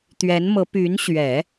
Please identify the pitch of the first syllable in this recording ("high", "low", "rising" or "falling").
rising